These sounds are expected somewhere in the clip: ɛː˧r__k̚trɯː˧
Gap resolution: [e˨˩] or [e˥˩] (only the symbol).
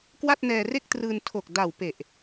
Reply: e˥˩